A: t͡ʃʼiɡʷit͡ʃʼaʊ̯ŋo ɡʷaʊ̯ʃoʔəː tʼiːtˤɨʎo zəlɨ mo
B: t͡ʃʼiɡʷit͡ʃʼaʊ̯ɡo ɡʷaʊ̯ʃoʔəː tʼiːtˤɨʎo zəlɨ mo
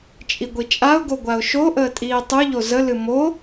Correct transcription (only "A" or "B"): B